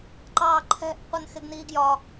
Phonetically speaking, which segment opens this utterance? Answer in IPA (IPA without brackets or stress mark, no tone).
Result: ǃ